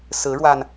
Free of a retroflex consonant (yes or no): no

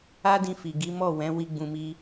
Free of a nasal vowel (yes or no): no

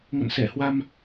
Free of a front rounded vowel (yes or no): yes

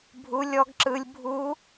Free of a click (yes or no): no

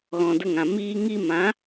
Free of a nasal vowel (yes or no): no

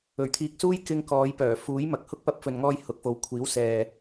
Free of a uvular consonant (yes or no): yes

